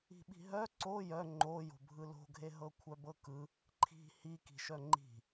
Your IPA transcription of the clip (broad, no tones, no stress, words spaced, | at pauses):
i̤ɓi̤ɦœ ǀo jœ ŋ͡ǃo jo̤bʱɯlo̤ɡʱe ɦɤkʷʰœbɤkɯ | ǃʰi̤ hiki̤ʃœ ŋ͡ǃi̤